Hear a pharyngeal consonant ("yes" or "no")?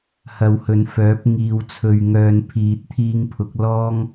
no